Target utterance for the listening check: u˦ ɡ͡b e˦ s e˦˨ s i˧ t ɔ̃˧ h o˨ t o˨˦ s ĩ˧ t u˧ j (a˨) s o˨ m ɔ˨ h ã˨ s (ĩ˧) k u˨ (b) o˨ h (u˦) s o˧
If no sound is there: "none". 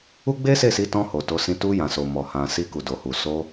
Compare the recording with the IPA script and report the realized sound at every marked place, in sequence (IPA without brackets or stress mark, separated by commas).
ã˨, i˧, d, u˨